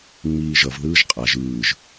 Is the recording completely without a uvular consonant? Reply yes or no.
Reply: no